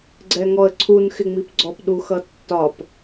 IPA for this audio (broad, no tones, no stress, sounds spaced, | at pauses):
ɡ͡ǀ ɛ ŋ ɔ ə̯ ǀʰ u n x ɪ ŋ͡m i p ɡ͡ǀ ɔ p ɗ u x ʌ tː ɒ p